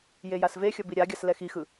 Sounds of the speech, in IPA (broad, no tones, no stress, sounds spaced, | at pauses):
j e j a s v e xʲ ʌ b i ɾʲ a ɡʲ a s l ɛ x i x ɯ